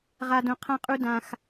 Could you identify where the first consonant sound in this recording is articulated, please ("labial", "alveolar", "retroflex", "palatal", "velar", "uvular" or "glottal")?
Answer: uvular